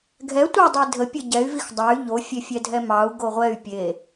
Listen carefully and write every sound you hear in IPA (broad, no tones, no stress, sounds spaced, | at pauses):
ɡʱ ɛ tʷ ə dˤ i dʱ ə pʲ ə ɟ ɛ y̯ v i x dˤ æ y̯ ʎ o fʲ e fʲ ɛ dʱ ɛ m ɑ u̯ ɡ o ʁʷ ɛ y̯ pʲ e